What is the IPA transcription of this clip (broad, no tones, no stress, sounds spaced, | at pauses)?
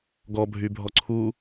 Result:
ɡ ɔ bʱ y bʱ ɔ ǀʰ u